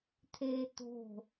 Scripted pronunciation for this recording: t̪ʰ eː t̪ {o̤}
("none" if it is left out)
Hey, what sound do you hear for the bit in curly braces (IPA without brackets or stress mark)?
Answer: o̤